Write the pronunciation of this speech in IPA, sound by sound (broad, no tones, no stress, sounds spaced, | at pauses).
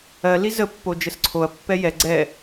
ɜ l i z ə pː o d͡ʒ ə s ǀʰ o ɐ̯ pː ɛ j ɛ ɡ͡ǀ ɛ